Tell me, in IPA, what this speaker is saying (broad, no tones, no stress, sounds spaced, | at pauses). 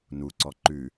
n u ǀ ɔ ǃ ʉ